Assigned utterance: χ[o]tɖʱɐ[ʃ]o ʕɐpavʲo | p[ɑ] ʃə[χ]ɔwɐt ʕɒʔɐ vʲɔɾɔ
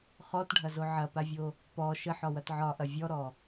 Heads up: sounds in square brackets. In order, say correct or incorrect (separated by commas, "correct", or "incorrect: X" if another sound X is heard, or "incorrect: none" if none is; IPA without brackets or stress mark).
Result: incorrect: ɔ, incorrect: z, incorrect: ɔ, incorrect: ħ